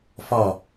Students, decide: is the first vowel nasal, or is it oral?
oral